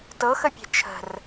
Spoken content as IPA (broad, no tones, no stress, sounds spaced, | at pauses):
t ɤ x ə pʲ e̤ t͡ʃʰ ə̤ r